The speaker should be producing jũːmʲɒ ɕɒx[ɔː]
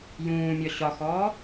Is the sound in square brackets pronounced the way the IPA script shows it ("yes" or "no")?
yes